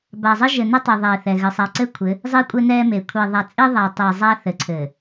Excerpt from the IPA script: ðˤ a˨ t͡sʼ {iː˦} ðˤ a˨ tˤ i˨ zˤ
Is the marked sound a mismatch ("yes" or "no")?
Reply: yes